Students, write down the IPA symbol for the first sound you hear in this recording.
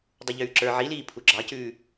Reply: dˤ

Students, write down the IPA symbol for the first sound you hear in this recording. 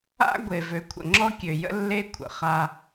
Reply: a̰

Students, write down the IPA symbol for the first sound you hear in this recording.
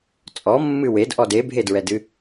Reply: t͡sʼ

